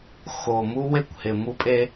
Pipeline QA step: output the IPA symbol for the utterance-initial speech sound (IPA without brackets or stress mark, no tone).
x